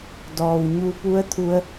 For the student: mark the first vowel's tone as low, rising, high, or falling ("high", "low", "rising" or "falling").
low